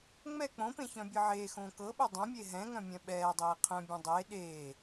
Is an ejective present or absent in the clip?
absent